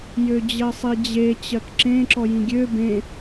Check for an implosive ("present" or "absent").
absent